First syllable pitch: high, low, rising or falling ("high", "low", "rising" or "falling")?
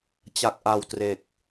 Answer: low